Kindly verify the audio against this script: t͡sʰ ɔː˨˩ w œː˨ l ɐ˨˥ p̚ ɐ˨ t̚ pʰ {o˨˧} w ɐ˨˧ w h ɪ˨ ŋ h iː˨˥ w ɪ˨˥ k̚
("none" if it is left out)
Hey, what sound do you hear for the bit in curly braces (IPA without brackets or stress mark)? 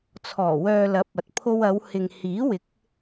o˧